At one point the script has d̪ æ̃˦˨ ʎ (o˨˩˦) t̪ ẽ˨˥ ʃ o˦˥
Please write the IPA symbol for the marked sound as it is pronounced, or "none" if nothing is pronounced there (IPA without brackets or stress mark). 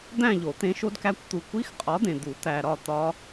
o˨˩˦